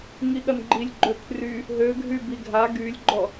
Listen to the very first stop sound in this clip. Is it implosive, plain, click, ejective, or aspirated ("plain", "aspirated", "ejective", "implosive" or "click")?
implosive